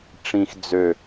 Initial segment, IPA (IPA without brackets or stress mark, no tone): ʈ͡ʂ